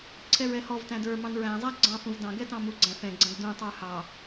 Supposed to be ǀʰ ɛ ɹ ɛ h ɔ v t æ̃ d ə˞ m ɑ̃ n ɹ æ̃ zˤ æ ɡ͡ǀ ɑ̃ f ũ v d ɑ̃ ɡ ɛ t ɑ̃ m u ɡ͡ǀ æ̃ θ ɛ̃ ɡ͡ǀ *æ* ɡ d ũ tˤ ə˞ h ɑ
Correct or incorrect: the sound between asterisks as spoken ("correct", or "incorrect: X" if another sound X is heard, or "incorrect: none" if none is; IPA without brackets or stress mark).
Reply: incorrect: æ̃